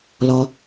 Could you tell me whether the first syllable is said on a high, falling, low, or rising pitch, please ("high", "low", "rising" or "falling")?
low